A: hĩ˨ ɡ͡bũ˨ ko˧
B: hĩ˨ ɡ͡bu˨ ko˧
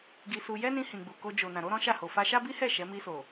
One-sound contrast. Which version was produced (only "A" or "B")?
B